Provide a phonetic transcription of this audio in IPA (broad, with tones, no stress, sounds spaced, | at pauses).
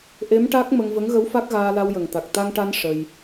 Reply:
ʔ e˧˥ m ʈ a˦˥ k̚ m ə˧ ŋ v ə˧˥ ŋ ɣ ə˧˥ w f a˦˥ k̚ ɣ aː˧ l a˧ w j ə˨˩ ŋ t̪ a˨˩ k̚ t̪ a˧ ŋ ʈ a˧ n ʂ ə˧ j